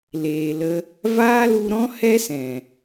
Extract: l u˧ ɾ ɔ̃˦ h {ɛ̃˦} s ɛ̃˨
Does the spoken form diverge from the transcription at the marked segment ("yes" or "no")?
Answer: yes